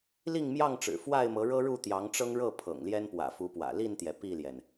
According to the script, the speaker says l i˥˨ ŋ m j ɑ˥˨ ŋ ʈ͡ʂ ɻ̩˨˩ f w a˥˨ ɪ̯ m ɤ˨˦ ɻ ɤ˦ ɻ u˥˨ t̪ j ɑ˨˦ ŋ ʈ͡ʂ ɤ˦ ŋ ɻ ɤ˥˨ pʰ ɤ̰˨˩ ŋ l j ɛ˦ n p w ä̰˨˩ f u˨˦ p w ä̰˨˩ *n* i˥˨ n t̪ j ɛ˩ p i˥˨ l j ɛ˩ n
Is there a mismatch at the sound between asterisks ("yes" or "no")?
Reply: yes